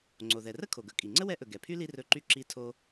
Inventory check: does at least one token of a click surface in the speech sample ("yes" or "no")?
yes